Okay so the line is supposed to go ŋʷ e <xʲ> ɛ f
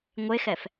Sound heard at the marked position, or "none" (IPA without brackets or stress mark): x